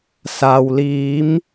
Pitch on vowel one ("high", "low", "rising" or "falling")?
low